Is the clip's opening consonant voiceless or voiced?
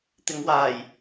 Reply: voiceless